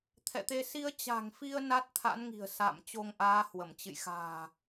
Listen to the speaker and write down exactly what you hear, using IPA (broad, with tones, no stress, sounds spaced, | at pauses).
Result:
t̪ʰ ɛ̰˧˨ t̪ e˧ s i˧ ə̯ t͡ɕ a̤˨˩ ŋ f i˧ ə̯ n a˦˥ t̚ t̪ʰ a̰˧˥ n ŋ i̤˨˩ ə̯ s a̰˧˨ m t͡ɕ o˧ ŋ ʔ aː˨˦ h w ə˧˩ m t͡ɕ ɨ̰˧˨ j x a̤ː˨˩